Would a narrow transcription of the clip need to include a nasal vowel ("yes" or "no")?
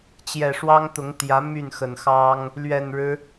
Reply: no